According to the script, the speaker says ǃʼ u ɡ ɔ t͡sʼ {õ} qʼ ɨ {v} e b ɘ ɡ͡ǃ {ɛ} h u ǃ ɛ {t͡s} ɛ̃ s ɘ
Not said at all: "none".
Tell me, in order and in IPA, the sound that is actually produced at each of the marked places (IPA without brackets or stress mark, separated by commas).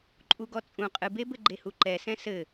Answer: ũ, b, e, s